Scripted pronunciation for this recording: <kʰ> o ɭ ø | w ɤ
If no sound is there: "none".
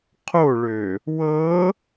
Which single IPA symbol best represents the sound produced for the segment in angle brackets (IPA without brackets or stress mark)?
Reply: qʰ